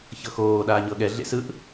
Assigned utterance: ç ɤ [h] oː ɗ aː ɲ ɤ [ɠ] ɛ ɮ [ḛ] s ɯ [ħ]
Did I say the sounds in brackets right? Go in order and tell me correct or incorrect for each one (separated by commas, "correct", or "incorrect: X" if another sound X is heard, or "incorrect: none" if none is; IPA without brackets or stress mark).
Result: incorrect: x, correct, correct, incorrect: ʔ